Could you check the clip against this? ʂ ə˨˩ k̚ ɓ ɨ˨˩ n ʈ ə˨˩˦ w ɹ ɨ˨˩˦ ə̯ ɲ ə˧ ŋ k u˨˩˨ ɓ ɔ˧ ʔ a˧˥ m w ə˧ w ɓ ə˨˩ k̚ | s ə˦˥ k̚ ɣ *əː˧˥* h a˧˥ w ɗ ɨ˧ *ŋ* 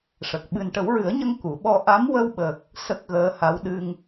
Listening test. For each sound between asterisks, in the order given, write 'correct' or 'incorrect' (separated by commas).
correct, correct